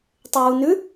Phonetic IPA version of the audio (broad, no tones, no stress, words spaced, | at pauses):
tˤɪwunʉ